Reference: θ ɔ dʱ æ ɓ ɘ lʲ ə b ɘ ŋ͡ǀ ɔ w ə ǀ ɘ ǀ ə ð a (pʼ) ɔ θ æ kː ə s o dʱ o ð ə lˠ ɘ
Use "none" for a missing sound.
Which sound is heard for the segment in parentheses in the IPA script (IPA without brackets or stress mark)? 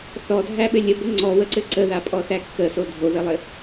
pʼ